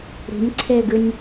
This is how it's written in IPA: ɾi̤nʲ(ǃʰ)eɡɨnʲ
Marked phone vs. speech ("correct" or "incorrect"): incorrect